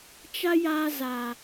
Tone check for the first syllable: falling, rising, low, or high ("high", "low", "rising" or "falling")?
high